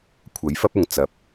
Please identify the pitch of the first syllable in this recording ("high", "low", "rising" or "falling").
rising